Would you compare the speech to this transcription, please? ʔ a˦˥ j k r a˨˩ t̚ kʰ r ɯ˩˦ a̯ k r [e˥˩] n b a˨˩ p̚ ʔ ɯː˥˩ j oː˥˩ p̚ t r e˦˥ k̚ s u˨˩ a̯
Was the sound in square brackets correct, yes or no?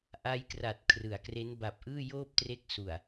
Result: no